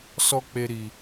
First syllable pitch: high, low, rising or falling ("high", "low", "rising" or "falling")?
high